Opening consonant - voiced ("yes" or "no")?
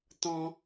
no